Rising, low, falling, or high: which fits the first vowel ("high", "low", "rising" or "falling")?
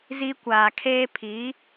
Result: high